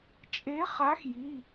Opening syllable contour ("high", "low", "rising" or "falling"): rising